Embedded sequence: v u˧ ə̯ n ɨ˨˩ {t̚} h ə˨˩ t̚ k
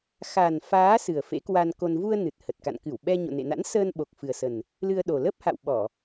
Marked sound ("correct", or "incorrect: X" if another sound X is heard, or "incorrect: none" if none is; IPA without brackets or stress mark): correct